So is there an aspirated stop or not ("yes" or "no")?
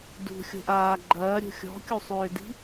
no